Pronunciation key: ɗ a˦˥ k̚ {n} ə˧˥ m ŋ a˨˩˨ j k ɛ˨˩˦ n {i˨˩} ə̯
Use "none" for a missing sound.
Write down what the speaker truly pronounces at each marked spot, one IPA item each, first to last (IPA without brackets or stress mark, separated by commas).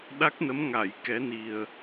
n, i˨˩